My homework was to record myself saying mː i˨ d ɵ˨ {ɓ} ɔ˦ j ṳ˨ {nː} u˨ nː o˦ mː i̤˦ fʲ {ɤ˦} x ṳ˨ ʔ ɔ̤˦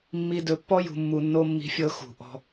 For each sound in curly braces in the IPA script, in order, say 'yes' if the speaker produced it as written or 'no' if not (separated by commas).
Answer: no, no, yes